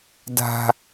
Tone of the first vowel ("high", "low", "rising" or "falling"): low